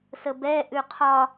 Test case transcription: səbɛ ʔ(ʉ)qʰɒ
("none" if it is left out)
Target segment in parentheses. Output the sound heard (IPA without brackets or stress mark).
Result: ʉ